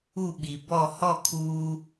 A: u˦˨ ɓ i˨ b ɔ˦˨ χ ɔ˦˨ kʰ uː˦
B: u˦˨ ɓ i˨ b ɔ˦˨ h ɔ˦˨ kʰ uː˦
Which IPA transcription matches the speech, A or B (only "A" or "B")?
B